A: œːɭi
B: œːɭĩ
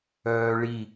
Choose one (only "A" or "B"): A